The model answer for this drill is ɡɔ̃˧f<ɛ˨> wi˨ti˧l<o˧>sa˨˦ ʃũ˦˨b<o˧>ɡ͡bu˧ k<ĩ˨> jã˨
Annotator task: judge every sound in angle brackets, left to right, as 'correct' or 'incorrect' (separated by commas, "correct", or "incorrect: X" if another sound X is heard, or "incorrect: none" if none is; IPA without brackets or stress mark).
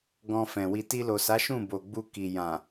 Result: incorrect: ɛ̃˨, incorrect: o˨, incorrect: o˨, incorrect: i˨